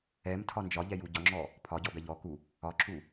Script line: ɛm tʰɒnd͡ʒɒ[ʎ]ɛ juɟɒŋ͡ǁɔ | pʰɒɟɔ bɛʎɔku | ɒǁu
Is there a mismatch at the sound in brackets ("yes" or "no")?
no